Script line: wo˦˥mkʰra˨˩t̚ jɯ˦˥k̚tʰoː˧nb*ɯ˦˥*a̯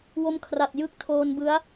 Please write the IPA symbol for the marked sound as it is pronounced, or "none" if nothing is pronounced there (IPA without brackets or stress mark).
ɯ˦˥